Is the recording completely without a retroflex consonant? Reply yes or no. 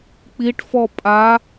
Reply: no